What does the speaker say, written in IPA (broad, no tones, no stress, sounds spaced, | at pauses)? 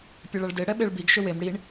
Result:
pʲ ɐ ɭ ɐ ɭ d e ɽ ɛ ɓ e ɭ b i ɡ ʃ ʏ w e m ɽ i ɳ